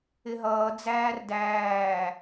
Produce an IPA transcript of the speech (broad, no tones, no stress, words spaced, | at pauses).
ɪɦʌː d͡zæːrdæː